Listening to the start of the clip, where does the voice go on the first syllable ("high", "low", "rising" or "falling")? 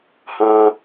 high